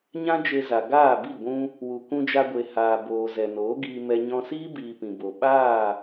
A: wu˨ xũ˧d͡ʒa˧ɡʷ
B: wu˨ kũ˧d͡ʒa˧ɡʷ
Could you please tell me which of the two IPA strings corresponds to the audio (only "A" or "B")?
B